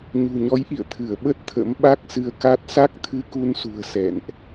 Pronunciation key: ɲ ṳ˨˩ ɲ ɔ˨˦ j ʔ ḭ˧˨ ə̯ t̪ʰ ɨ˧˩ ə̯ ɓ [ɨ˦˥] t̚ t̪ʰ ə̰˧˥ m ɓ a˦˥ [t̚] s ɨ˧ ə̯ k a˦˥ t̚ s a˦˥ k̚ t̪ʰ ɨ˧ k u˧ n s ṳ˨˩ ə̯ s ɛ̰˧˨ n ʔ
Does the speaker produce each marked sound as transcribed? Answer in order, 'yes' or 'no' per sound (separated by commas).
no, no